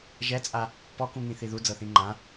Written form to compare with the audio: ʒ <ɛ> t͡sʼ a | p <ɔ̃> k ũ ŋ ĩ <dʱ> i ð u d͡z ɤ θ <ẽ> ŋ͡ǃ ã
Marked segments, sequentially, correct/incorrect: correct, incorrect, incorrect, incorrect

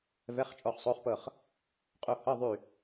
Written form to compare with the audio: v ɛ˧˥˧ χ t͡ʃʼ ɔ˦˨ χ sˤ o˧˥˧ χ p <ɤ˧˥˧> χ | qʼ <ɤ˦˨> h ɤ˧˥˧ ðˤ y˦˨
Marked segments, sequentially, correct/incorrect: incorrect, incorrect

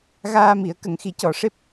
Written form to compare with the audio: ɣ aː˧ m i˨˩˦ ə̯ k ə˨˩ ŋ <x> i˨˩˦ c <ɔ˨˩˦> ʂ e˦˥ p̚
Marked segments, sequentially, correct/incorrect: correct, correct

